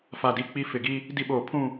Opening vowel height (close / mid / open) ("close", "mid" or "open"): open